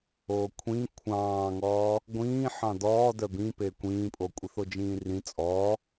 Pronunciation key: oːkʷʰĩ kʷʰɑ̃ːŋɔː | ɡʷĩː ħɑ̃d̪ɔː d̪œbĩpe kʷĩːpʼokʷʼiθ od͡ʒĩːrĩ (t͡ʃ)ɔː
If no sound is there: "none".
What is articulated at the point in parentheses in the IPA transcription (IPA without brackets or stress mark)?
t͡sʼ